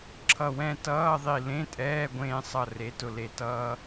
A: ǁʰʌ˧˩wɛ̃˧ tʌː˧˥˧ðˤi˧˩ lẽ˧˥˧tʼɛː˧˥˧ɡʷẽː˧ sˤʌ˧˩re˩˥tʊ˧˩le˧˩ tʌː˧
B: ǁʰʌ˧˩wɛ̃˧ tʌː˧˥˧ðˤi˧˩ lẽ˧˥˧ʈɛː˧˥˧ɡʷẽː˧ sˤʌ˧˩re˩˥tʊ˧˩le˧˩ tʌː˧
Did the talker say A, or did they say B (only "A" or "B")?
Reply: A